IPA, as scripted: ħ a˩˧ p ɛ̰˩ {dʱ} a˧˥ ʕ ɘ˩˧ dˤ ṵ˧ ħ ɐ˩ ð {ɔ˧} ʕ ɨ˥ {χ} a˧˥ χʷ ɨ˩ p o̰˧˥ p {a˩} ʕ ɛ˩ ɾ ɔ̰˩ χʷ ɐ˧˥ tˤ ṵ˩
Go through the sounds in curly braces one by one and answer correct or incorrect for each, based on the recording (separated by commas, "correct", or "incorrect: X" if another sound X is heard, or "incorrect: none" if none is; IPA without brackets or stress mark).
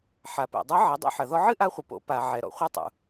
incorrect: dˤ, correct, incorrect: ʔ, correct